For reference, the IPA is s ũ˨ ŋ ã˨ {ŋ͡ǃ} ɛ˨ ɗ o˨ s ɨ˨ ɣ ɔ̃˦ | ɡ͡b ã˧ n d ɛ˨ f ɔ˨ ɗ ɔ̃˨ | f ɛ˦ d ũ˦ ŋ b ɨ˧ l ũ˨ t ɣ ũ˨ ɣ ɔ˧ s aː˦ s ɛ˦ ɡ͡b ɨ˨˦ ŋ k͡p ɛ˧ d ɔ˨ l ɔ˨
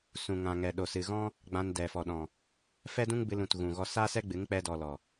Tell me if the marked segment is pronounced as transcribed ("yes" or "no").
no